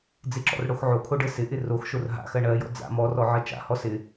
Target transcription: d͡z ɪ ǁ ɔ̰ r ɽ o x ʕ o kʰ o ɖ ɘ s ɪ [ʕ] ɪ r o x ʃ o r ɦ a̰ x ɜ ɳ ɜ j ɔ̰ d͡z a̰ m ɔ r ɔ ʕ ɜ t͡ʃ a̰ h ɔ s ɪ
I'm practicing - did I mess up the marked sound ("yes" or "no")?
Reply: yes